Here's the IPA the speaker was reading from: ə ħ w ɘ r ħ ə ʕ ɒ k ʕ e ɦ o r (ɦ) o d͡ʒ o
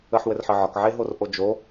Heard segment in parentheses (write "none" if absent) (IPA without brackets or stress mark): ʔ